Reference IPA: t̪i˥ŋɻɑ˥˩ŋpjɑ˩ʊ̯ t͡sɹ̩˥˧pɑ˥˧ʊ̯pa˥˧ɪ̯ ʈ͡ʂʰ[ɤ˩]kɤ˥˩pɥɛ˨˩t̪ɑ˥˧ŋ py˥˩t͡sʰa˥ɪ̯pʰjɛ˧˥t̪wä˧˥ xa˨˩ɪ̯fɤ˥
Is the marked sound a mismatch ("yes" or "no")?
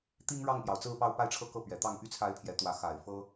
yes